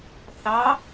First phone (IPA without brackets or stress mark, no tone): θ